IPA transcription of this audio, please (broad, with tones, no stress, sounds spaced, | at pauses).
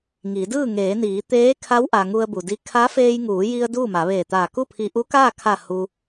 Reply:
ŋ iː˩˧ d ɯː˥˨ ŋ eː˩˧ n iː˩˧ t̪ eː˧˥ kʰ a˧˥ w ʔ a˩ ŋ u˧ ə̯ b u˩ d i˧ kʰ a˧˥ f eː˧ j ŋ uː˩˧ j i˧ ə̯ d uː˥˨ m a˩˧ ʋ eː˧˩ t̪ aː˧˩ k u˥˨ pʰ i˧ ʔ u˧˥ k aː˥˨ kʰ a˧˩ h u˧